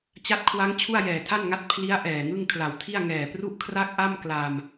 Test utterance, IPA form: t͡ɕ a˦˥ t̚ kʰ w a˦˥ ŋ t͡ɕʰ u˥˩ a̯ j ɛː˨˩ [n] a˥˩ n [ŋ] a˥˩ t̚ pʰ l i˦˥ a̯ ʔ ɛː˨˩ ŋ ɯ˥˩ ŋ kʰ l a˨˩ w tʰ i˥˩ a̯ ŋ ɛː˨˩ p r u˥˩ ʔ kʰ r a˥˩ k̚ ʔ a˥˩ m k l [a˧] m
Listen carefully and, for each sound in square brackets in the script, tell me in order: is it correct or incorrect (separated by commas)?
incorrect, correct, correct